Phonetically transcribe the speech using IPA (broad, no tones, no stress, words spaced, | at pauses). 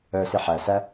œsi ħæsæ